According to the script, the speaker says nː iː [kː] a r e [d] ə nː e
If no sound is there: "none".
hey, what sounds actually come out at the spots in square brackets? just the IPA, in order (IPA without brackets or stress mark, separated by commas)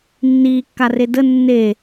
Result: kː, d